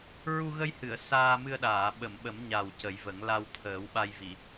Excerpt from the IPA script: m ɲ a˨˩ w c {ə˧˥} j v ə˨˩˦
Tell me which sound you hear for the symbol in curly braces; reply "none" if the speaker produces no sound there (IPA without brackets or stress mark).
ə˨˩˦